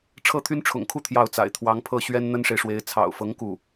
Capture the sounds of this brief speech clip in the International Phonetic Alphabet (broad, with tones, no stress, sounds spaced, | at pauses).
ʈ͡ʂʰ ɤ˥ t̪ʰ y˥ n ʈ͡ʂʰ ʊ̰˨˩ ŋ kʰ u˥˧ t̪ʰ j ɑ˥˩ ʊ̯ t͡s a̰˨˩ ɪ̯ t̪ʰ w ɑ˧˥ ŋ pʰ ɤ˥˩ ɕ ɥ ɛ˥ n n̪ ə˥ n ʂ e˨ ɪ̯ ʂ w e˧˥ ɪ̯ t͡sʰ ɑ̰˨˩ ʊ̯ f ɤ˧˥ ŋ k u˥˩